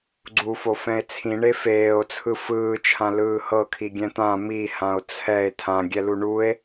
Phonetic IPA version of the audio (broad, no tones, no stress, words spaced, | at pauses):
ɡ͡ǀufofɛ̃e̯ t͡sʰĩɳe feːo̯t͡sʰɯ fɯːt͡ʃʰãlɯː hɤkʰiɡʲɛ̃ t̪ã mihão̯ t͡sʰɛe̯ tʰãɡʲɛlu ɳue̯